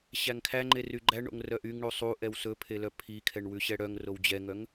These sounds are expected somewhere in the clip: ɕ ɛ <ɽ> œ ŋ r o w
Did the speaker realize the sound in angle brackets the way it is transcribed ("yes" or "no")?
yes